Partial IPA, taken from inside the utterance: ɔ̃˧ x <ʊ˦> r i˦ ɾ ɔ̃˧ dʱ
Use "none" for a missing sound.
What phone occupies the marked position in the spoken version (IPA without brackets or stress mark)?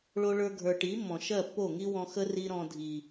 ə˦